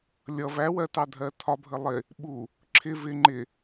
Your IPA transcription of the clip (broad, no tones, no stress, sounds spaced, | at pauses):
lʲ ʌ v æ w ɜ t ɑ dʱ ɜ tʰ ɒ bʱ ə lˠ ɪ | ɓ u | ǁʰ ɪ v ɪ ŋ͡ǃ ɪ